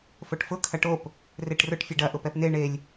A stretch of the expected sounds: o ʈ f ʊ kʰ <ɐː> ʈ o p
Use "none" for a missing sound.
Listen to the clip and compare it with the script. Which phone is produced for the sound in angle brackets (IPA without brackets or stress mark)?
ɐ